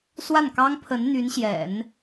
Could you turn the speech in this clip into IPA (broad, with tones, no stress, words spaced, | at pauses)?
swa˥˩nkɑ˥ŋpʰə˧˥n n̪y˧˥nɕjɛ̰˨˩˦n